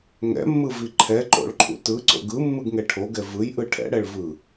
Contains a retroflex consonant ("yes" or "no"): yes